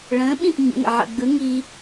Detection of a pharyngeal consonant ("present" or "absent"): present